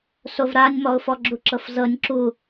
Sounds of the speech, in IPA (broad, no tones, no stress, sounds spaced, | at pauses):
s o v ɾ a nʲ m ɔ ʊ̯ f ɔ ɡ͡ǁ u ǁ ɤ f z ɤ nʲ ǁ u